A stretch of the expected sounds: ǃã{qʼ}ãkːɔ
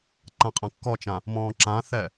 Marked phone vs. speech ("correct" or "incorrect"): correct